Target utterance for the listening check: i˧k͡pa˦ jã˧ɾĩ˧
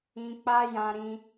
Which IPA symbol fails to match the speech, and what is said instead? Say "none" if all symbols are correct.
i˧ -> ĩ˧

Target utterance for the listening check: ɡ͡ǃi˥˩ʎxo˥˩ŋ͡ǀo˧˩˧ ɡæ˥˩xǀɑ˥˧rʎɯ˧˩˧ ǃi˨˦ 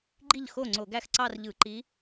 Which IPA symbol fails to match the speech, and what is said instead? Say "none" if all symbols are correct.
none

